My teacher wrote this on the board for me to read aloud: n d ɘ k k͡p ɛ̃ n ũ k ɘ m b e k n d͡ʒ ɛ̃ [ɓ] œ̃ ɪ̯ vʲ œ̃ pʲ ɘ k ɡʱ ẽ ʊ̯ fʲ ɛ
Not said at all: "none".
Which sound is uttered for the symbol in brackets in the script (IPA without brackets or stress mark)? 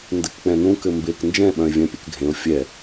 ɓ